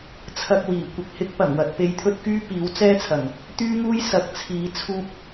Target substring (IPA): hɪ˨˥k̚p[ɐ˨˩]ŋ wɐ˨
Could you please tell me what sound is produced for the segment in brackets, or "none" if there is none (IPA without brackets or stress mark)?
ɐ˨˩